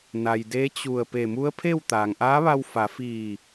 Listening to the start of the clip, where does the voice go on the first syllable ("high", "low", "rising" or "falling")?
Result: low